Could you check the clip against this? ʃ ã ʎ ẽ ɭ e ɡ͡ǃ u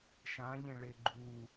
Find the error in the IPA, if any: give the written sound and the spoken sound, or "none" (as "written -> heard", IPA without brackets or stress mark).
none